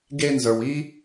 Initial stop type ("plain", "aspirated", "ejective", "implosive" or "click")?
plain